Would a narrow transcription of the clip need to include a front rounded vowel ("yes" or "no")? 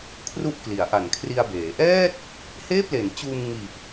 no